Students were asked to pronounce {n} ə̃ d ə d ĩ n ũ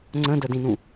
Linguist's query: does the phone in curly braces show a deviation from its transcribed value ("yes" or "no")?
yes